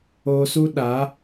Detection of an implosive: present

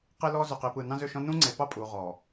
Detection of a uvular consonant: present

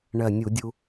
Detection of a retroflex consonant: present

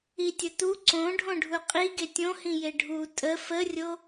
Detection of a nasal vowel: present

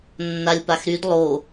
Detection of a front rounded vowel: present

